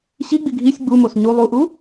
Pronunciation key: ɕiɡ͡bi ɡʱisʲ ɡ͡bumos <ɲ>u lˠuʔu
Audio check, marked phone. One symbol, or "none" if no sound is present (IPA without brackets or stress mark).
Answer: ɲ